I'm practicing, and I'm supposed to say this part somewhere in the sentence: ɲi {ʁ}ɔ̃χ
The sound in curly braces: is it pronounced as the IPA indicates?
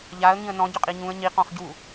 no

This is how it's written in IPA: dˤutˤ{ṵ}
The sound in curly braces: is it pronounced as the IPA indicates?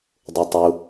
no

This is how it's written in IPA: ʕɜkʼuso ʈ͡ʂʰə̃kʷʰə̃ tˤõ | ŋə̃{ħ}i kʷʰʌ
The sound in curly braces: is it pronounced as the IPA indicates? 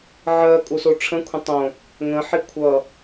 yes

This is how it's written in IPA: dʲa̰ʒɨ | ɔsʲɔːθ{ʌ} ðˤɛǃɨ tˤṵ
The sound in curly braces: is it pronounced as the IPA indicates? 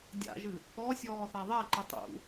no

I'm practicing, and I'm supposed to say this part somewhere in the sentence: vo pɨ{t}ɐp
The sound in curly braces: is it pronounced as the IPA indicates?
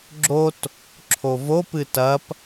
yes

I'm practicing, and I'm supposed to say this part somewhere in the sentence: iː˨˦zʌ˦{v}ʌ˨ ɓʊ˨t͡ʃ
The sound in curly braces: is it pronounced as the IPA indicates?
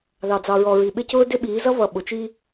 yes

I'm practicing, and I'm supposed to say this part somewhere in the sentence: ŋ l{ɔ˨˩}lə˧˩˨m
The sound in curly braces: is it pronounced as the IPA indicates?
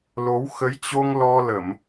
no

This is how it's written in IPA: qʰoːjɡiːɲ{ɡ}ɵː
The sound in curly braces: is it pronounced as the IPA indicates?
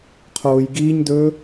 no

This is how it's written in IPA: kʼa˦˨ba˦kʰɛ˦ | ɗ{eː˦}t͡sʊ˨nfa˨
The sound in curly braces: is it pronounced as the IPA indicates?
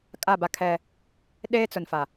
yes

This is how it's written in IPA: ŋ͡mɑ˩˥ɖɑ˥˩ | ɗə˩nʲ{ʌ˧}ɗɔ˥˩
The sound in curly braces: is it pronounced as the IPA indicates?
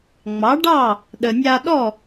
no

